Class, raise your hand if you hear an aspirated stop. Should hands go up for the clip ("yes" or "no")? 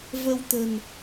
no